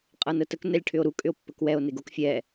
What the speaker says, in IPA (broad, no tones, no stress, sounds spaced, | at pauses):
qʼ ɤ n ə t ə k n ɛ lʲ ʈʰ ʏ o̯ ɾ u kʼ ʏ o̯ pː ə k w ɛ o̯ n e ɡ o k fʲ ɛ